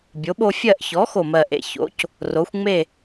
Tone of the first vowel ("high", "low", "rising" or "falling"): rising